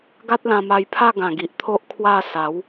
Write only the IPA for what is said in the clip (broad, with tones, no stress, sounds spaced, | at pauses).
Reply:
ɡ a˦ t̚ l ã˧ m a˧ j pʰ a˥˧ ɡ ã˨˩ ɡ i˨ ʔ t̪ʰ o˦ ʔ kʰ w a˥˧ s a˨˦ w